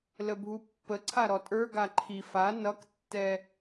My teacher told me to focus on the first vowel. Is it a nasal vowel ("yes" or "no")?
no